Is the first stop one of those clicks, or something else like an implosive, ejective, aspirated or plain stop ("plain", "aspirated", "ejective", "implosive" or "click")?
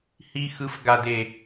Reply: plain